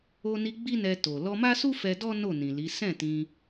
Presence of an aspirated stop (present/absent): absent